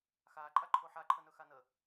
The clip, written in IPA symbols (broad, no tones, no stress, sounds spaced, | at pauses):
x aː ǃʼ a ǃʰ o ħ a ǃʰ ə n ɵ x a n ə